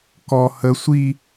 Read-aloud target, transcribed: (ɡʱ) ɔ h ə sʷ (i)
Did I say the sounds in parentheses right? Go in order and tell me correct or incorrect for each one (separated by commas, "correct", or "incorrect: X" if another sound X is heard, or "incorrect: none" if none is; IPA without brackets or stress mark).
incorrect: k, correct